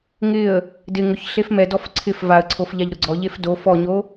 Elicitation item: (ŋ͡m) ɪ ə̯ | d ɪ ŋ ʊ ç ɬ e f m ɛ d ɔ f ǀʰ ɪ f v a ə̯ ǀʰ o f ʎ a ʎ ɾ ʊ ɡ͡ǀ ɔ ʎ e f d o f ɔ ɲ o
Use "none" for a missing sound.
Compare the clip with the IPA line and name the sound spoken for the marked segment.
ŋ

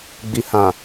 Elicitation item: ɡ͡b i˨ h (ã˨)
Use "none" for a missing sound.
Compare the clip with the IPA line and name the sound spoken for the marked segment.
ã˨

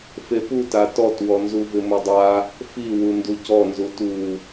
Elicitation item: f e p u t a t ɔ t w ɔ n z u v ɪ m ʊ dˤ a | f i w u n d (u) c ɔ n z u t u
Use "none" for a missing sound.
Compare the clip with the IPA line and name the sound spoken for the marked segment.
u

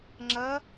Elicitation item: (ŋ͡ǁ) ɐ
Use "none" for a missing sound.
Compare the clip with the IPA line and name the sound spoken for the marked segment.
ŋ͡ǁ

